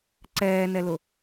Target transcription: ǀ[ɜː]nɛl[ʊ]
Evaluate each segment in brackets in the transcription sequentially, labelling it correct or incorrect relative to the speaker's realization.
incorrect: ɛː, correct

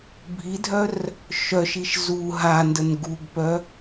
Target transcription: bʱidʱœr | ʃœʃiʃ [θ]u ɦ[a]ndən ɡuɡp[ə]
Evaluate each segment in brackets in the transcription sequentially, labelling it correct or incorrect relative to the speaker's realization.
incorrect: z, correct, incorrect: œ

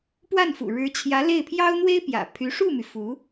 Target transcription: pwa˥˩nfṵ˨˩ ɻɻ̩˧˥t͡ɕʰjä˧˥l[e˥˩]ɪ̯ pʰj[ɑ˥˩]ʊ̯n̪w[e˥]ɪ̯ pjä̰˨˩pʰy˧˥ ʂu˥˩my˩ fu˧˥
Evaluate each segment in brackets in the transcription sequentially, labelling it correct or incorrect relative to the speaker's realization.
correct, incorrect: ɑ˥, correct

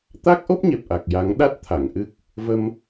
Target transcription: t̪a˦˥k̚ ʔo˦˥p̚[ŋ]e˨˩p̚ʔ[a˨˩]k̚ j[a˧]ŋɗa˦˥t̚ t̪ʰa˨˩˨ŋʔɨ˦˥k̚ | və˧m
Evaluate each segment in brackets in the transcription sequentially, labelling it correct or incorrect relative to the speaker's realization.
incorrect: ɲ, correct, incorrect: a˨˩˦

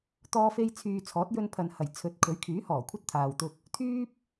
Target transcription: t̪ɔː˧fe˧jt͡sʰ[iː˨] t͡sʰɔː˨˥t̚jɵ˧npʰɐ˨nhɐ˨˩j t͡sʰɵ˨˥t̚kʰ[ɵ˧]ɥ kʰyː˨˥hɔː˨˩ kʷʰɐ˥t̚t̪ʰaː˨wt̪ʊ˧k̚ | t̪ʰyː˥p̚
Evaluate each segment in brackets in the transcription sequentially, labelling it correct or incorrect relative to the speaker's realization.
incorrect: yː˨, incorrect: ɵ˨˥

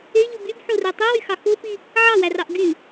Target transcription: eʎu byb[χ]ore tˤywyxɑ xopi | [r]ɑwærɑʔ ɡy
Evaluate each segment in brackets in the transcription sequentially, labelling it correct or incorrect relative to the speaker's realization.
incorrect: ħ, incorrect: ʕ

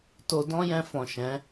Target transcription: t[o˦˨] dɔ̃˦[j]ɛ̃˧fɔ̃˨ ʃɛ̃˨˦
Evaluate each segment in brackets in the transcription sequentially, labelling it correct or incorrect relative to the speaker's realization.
incorrect: o˧, correct

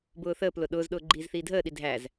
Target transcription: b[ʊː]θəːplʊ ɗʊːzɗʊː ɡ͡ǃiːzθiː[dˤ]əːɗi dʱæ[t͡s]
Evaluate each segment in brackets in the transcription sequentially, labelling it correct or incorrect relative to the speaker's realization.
correct, incorrect: dʱ, incorrect: z

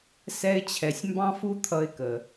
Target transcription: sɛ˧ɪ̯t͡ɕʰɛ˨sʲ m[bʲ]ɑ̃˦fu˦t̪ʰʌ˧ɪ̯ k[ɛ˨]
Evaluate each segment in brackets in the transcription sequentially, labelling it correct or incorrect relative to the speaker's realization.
incorrect: b, incorrect: ə˨

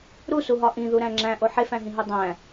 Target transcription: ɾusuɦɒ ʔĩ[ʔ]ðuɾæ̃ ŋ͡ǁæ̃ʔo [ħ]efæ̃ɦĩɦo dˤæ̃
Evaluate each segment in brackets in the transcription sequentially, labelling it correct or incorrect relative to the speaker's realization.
incorrect: none, correct

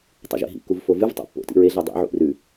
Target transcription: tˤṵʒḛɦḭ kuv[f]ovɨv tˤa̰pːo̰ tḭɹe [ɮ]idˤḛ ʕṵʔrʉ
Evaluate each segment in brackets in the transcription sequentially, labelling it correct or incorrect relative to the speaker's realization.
correct, correct

